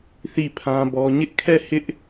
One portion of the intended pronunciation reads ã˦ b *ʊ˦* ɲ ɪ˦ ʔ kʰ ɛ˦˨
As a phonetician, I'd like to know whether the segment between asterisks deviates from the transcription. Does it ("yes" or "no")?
yes